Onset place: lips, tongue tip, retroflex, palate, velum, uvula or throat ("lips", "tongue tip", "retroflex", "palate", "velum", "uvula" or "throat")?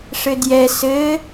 retroflex